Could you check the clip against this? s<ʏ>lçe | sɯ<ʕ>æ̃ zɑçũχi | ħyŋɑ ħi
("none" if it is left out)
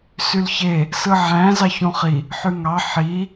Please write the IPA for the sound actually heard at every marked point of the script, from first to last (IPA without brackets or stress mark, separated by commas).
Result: y, ʕ